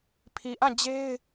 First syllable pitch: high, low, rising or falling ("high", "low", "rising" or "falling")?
low